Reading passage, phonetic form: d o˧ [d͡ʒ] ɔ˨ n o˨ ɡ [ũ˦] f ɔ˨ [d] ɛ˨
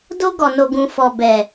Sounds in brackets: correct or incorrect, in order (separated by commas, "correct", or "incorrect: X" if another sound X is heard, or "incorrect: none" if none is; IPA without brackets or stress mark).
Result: incorrect: ɡ, incorrect: ũ˨, incorrect: b